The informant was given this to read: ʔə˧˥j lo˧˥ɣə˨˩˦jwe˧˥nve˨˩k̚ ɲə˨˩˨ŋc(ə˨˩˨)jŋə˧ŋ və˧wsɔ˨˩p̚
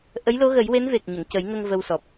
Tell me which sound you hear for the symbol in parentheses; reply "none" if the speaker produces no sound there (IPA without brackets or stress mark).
ə˨˩˦